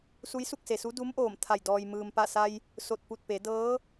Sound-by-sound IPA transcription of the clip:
su˧˥jsu˥˨k̚se˩su˧˥ du˧˥mʔoː˧˩m t̪ʰa˧˩j dɔː˩jmɯː˩mpa˧˩sa˧j | so˧˩t̚pu˧˩t̚pe˩˧ dɤː˧˥

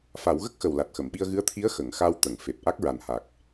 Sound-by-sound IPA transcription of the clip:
fa˨˩˦w ɣə˦˥k̚xə˨˩w la˨˩t̚xə˨˩˨mɓi˧ə̯ ɣɨ˧˥ə̯t̪ʰi˧˥ə̯ xə˨˩˨ŋxa˧wt̪ə˨˩˨ŋ fe˨˩p̚ ʔa˦˥k̚ɹa˨˩n ha˨˩k̚

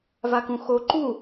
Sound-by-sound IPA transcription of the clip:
vakũxo ǃu

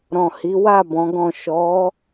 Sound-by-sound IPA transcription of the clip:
ɾɔ̃˨ hi˨˦ wa˦˨ bɔ̃˨˦ɡɔ̃˦˨ ʃɔ˨˦

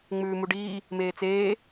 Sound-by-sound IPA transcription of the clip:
ŋ͡mʉːmuɖiː | meːt͡seː

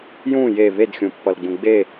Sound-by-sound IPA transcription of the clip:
jũ je βedxʲũpːʌlɡ͡bũ ɡ͡be

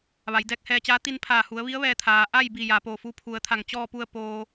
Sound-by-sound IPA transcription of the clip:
ʋa˩˧jdɛː˧k̚hɛː˧t͡ɕaː˧˥ t̪i˧npʰaː˧˩hu˩˧ə̯ʋi˧˥ə̯ ʋɛː˧t̪ʰaː˩ ʔa˥˨jbi˧˩ ja˩˧poː˧˩fu˧˥ pʰu˩˧ə̯t̪ʰa˧˩ŋt͡ɕɔː˥˨pu˥˨ə̯ poː˧

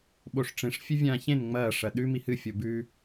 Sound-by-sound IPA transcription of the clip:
ɓoʂʈ͡ʂẽʂ fʲɵvʲãːçẽn ŋ͡mɐː ʂɐɗʉ mihɨ fʲobʉ

